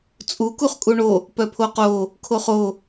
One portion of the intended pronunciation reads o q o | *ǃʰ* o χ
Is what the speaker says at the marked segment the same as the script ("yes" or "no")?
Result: no